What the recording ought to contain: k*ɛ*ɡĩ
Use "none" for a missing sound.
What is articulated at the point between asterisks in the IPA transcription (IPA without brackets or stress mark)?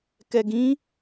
ɛ